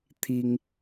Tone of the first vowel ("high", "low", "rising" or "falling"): high